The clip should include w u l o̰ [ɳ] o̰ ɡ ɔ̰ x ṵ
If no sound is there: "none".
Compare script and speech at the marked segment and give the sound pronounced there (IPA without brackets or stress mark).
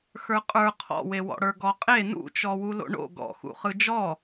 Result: ɳ